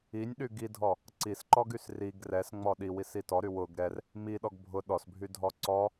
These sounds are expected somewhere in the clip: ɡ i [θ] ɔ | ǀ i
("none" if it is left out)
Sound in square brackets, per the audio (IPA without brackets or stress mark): dʱ